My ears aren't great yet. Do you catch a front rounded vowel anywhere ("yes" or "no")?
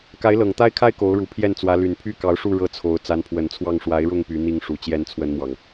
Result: yes